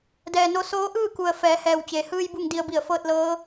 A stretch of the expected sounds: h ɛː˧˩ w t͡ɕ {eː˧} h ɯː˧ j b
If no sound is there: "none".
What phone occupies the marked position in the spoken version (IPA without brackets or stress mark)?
eː˩